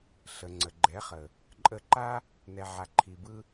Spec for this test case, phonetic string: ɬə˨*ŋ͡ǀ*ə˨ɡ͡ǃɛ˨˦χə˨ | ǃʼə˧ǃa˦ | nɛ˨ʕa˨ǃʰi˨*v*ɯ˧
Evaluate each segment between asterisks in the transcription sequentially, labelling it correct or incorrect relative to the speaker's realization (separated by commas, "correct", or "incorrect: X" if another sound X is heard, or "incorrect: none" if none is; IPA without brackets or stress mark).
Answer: correct, incorrect: b